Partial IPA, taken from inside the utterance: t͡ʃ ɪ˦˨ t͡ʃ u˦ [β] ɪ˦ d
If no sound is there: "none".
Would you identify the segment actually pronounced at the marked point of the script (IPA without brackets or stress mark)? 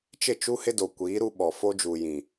h